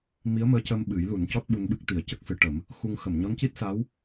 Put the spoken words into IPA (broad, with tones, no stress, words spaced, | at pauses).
mi˧˥ə̯məː˧˥cəː˧m ɓɨ˨˩˦jlu˨˩˦ncɔ˦˥t̚ ɓu˧nɓɨ˦˥k̚ t̪i˨˩˦ə̯cə˦˥k̚sɨ˨˩˦ʈə˨˩˦m | xu˧ŋ xə˨˩˨mɲɔ˧˥nci˦˥t̚sa˧˥w